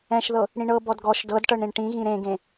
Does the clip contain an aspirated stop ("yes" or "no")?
no